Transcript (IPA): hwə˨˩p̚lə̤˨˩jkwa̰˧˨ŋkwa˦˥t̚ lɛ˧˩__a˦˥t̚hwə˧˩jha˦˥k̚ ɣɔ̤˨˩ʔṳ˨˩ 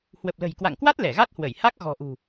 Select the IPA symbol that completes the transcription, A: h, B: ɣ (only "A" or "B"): B